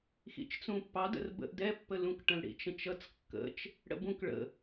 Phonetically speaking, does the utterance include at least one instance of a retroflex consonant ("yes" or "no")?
yes